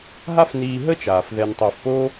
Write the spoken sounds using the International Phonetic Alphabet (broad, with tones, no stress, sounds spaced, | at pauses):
ɦ a˥ f n iː˧ ɦ ə˥ t͡ʃ aː˩ f ð ɛ˧ n tˤ əː˧ f p o˥